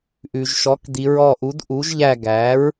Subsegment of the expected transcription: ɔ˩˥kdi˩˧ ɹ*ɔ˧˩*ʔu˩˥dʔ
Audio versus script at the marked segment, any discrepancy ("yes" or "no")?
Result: no